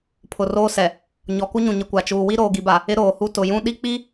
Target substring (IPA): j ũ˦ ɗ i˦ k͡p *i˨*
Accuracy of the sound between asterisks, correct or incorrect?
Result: incorrect